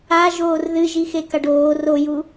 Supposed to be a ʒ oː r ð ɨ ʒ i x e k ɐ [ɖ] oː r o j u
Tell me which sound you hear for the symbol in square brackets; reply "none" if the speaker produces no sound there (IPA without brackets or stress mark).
ɖ